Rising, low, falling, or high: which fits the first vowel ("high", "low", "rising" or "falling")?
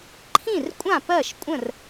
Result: falling